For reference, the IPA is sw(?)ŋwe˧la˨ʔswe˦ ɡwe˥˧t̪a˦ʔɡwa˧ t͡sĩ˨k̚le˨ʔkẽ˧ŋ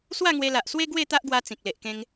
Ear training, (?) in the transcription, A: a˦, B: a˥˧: B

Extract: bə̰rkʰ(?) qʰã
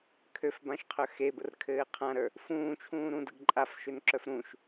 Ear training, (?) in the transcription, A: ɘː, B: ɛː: A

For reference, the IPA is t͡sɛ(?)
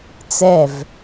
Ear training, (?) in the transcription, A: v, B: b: A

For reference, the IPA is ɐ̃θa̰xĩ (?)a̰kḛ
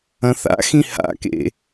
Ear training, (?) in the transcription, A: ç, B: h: B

